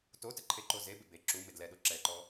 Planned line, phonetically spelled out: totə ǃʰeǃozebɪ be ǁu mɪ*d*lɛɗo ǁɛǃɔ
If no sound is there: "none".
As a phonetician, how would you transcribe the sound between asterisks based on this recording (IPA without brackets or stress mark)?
d